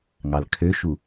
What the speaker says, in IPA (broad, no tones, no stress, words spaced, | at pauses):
ŋɑlkʰøʃu